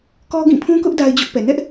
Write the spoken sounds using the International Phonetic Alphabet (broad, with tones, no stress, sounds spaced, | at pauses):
k ɔ˦ ɡ ĩ˦˨ pʰ ũ˦ k ʊ˦ ʔ d a˦ ɪ̯ d͡ʑ ʊ˦ ʔ p ɛ˨ n ɛ˦ ʔ